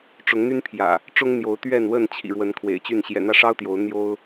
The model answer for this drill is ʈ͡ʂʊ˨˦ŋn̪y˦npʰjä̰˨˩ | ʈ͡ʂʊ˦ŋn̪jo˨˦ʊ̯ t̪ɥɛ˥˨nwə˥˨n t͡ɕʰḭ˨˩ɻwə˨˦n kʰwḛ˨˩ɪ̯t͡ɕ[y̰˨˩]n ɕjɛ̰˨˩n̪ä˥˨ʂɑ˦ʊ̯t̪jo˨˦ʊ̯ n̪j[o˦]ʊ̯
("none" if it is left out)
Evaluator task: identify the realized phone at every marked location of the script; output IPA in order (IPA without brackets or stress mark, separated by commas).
y˥˨, o˦